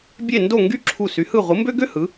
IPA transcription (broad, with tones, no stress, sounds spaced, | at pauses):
bʲ e˦˨ n d o˦˨ ŋ ɡ y˥ ǁʰ u˦˨ s y˨˦ h ɯ˦˨ ʁʷ ɯ˨˦ m b ø˥ ɡ ø˥ h ɯ˨˦